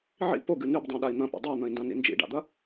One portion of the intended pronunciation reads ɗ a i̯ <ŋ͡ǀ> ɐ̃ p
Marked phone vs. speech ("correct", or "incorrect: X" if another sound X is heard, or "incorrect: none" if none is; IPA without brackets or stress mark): incorrect: n̪